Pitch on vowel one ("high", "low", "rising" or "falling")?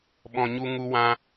low